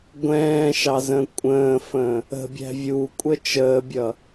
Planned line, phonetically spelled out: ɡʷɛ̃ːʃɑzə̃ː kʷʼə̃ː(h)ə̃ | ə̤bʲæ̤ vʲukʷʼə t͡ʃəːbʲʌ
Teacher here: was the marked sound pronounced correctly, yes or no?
no